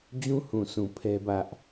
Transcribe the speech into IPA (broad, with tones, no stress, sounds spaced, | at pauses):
d͡ʑ ũ˦ h ũ˨ s ũ˨ pʰ ɛ˦ b ä˦ ʔ